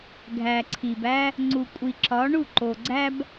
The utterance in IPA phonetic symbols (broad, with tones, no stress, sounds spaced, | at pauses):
ɡʱ æ˨ ǀʰ i˨ b æ˦ | ŋ͡ǀ u˨ kʷʼ i˨ ǁ ɒ˨˦ ɳ u˦˨ ǃ o˨ ɡ͡ǀ æ˦ b